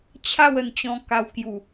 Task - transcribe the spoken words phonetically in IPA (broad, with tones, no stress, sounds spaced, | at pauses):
t͡ɕʰ a˥˧ w ə˧ n t͡ɕ ɔ̃˧ k a˧ w k j u˨˩